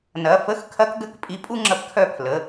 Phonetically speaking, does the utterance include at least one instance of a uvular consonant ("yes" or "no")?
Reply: no